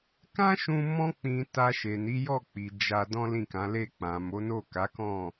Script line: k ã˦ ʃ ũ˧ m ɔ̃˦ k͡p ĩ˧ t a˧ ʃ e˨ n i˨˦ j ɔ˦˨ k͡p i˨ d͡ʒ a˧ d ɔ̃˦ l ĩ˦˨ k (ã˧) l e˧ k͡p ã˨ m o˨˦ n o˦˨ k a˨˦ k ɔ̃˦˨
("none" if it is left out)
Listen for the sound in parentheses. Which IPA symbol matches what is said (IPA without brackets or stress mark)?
ã˨˦